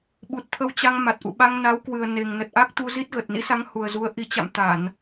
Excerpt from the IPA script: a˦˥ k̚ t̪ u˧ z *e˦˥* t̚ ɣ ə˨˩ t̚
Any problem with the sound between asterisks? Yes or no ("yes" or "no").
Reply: yes